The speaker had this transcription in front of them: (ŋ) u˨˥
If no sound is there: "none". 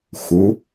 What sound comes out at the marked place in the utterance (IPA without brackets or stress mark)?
x